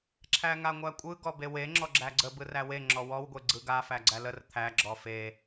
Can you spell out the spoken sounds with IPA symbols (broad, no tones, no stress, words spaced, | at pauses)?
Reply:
ǁʰæŋaŋʷækʷʼɯ ɡɔbewe ŋ͡ǁɔɡ͡ǁæɡ͡ǀə bɯræwe ŋ͡ǁɔwɔw ɡʷeɡ͡ǀɯɡa fæɡ͡ǀælər t̪ʰæ ɡ͡ǁɔfe